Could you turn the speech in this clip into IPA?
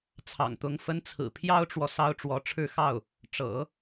t͡sʰ ɑ̰˨˩ ŋ t̪ ʊ˧˥ ŋ f ə˥ n t͡sʰ ɹ̩˨˩ pʰ j ɑ˥ ʊ̯ ʈ͡ʂ w ɔ˨ s ɑ˥ ʊ̯ ʈ͡ʂ w ɔ˧˥ ʈ͡ʂʰ ɻ̩˥˧ x ɑ˥˩ ʊ̯ | ʈ͡ʂ ɤ̰˨˩˦

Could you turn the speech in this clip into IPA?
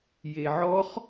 j e ʕ ɔ χ

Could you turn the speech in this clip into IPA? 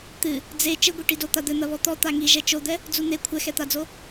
t̪ ɨ | d͡z e t͡ʃ ɘ ɡʷ i ʈ i d o t̪ a d̪ ɘ n̪ ɐ β ɔ t̪ ɔ t̪ a ŋ i ʒ ɛ t͡ʃ o d̪ ɛ | d͡z u n̪ e kʷʰ ɛ x ɛ t̪ a d͡z o

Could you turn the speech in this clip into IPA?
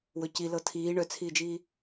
w ɵ c i l ɤ tʰ iː ɳ œ t͡sʰ iː d͡ʒ iː

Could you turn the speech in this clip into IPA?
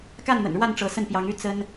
k a˥˨ n n̪ ə̰˨˩ n ɻ w a˥˨ n ʈ͡ʂ ɤ˨˦ s ə˥˨ n p j ɑ˨˦ ŋ y˦ t͡s ə˦ n

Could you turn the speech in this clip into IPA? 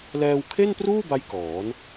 l ɛː˧ w kʰ e˥˩ n p r uː˥˩ b a˦˥ j k ɔː˩˦ n

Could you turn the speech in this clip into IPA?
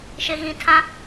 ʃ ɪ˨ ɣ ĩ˨ tʰ ã˦

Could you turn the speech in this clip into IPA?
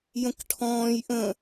j ə̃ k ʈʰ ɔ̃ː j ʔ ə̃

